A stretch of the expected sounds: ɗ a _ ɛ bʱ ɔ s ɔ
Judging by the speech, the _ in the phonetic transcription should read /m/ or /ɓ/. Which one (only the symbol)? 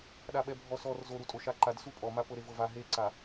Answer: ɓ